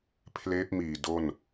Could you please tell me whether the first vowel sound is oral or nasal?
oral